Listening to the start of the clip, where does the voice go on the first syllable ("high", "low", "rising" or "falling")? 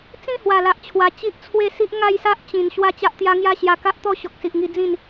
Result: falling